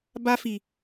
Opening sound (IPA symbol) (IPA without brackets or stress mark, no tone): b